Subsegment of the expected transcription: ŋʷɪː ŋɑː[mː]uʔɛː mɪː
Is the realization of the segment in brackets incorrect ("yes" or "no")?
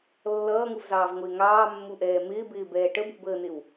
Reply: no